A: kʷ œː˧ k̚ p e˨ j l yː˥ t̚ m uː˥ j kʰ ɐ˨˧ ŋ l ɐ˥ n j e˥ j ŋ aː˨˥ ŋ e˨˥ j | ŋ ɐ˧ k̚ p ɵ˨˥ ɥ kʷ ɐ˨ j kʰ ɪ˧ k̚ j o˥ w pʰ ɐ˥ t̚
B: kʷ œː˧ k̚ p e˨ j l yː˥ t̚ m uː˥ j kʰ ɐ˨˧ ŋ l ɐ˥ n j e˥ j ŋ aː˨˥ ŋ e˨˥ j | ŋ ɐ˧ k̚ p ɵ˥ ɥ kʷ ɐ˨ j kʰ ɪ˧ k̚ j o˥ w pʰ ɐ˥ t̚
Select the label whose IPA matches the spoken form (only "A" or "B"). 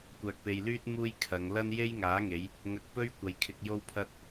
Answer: B